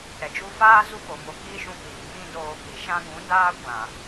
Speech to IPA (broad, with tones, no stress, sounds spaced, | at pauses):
ɾ ɛ˨ d͡ʒ u˧ f aː˦ z u˦ p o˨ m o˧ k iː˦ ʃ ũ˧ p iː˨ ŋ ĩ˦ d oː˧ k i˨ ʃ ã˧ ɡ ũ˨˦ d aː˦ kʷ ã˨